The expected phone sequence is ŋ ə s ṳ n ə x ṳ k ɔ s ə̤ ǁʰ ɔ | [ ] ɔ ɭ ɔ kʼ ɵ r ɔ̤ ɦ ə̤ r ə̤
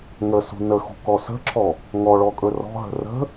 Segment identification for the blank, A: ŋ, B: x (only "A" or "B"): A